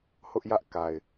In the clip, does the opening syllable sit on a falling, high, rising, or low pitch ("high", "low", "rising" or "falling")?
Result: high